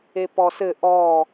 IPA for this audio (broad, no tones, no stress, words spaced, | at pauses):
epɔsɘ ʔɔ